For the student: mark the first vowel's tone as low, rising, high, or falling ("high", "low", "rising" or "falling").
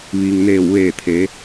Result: low